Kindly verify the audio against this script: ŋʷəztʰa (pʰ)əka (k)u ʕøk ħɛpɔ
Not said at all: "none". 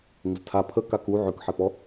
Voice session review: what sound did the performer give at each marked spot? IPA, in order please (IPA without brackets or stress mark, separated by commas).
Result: pʰ, k